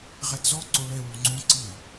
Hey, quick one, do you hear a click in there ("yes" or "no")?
yes